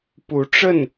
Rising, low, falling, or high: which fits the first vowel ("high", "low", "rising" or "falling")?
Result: rising